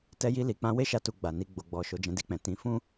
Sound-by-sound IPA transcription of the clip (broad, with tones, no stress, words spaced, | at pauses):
tɛ˧ji˧ li˨k͡pã˧we˦ ʃa˧tu˨ ɡ͡ba˨ni˧ɡ͡bo˨ ɡ͡bɔ˨ ʃo˨˦d͡ʒɛ̃˧di˧k͡pɛ̃˨ tĩ˨˦fũ˦